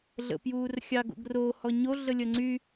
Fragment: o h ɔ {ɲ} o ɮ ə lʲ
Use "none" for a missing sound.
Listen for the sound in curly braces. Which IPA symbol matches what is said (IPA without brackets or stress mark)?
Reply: ɲ